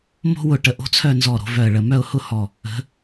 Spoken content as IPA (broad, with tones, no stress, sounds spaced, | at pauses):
m o̤˥ w ʊ˧˩ ʈ ə˧˩ ʔ o̤˥ t͡sʰ œ˥˧ n z ɔ˧˩ ɾ o̤˩˧ v œ˧˩ ə̯ ɭ ə˧˩ m œ˥˧ ʊ̯ h ʊ˥˧ h ɔ˧˩ | ə̤˩˧